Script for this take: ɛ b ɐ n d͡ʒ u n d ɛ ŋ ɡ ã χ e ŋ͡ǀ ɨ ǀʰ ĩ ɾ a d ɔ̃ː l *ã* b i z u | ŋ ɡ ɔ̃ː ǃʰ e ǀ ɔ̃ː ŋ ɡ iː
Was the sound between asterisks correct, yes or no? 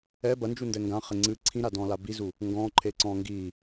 no